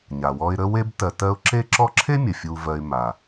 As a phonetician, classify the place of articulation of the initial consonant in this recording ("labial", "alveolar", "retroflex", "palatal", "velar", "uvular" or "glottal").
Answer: palatal